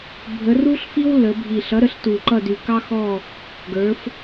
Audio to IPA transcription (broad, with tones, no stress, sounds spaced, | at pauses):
bʱ ə˩˧ r u˦ ɬ f i˦ w l ə˩˧ bʱ i˨˩ ɬ ʌ˨˥ ɾ ə˩˧ ɬ t u˨˩ ǃ ʌ˦˨ d y˨˩ k ɑ˦ x ɔ˦˨ | ɡ ə˞˩˧ f